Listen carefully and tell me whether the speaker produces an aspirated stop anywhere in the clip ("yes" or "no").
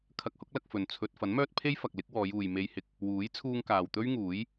yes